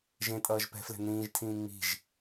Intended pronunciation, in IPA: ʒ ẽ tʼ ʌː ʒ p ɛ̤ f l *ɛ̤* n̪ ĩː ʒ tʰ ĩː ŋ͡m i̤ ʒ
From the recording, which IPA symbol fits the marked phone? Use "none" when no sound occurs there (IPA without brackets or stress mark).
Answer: ɛ̤